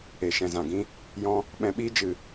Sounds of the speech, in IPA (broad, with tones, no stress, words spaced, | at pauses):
e˨ ʃɛ̃˨zã˨ ɡĩ˦ | jɔ̃˦ | ɓɛ̃˧ɓiː˦ d͡ʒɨ˧